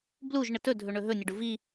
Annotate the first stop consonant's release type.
plain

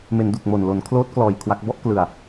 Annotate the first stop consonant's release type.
plain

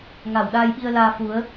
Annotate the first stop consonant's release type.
implosive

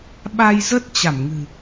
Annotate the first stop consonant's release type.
implosive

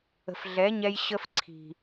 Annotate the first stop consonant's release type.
click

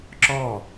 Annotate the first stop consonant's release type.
click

